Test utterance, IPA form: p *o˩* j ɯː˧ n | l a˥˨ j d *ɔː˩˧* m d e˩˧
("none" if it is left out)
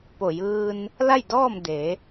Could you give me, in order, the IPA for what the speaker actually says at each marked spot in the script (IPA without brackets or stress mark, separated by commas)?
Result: o˧˩, ɔː˥˨